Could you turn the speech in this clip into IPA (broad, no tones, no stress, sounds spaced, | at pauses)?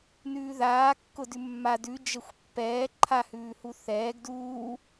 n ʉː ð aː kː ʊ d ʉ mː a d ʉ d͡ʒ ə xʷ pː ɛː ǃʰ a h ʉː h u θ ɛː ɡ d uː